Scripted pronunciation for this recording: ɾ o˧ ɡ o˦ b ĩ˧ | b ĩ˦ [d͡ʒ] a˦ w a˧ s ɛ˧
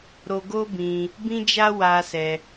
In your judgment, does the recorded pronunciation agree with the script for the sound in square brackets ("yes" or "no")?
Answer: yes